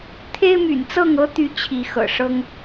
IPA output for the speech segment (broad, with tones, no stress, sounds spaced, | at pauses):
t̪ʰ e˦ ɪ̯ m y̰˨˩ n t͡s ɤ˥˨ ŋ ɤ˦ t̪ y˨˦ t͡ɕʰ i˨˦ x ɤ̰˨˩ ʂ ɤ˦ ŋ